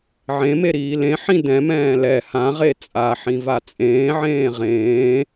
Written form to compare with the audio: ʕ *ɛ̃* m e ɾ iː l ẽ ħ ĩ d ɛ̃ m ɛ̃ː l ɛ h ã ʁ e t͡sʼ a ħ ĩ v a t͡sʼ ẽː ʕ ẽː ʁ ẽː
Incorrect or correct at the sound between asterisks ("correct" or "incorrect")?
incorrect